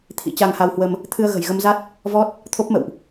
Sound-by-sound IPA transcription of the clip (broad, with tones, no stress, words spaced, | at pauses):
t̪ʰḭ˧˥t͡ɕa˧ŋha˧whwə˧m | t̪ʰɨ˧ə̯ɣə̤˨˩jɣə˧mza˦˥t̚ | vɔ˦˥t̚ | t̪ʰo˦˥p̚mə̰˧˨wʔ